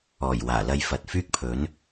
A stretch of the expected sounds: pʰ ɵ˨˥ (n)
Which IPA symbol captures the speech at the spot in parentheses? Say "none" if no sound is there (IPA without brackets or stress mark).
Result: n